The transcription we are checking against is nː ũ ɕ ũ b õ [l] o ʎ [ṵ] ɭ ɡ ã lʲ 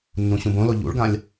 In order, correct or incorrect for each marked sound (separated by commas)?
correct, correct